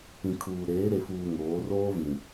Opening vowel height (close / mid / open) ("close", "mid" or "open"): close